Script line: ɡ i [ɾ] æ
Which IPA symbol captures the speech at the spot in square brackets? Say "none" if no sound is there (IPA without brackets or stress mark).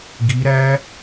ɾ